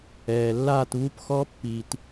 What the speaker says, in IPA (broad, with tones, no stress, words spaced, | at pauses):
ɛː˨lːaː˥˨tβu˦˥p xɔ˦˥pːiː˨t